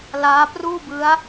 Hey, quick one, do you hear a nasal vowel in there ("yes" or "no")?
no